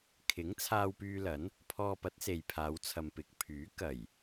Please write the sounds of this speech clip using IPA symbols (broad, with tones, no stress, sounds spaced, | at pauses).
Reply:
kʰ ɪ˨˥ ŋ t͡sʰ aː˧ w p yː˧ l ɐ˨˥ n | pʰ ɔː˧ p ɐ˨˥ t̚ s e˨ j pʰ aː˨˧ w t͡sʰ ɐ˨ m p ɪ˨˥ k̚ pʰ yː˨˥ k ɐ˨˩ j